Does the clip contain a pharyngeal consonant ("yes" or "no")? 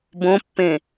no